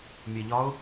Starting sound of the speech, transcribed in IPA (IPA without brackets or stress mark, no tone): mʲ